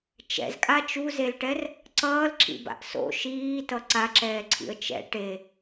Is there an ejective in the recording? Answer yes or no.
yes